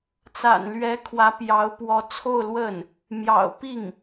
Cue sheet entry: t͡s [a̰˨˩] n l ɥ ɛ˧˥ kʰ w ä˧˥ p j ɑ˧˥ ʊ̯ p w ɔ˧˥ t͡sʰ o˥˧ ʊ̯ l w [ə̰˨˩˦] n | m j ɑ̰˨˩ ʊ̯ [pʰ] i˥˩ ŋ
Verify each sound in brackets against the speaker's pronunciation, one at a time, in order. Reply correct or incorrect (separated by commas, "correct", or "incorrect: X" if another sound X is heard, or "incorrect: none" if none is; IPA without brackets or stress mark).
correct, incorrect: ə˥˩, incorrect: p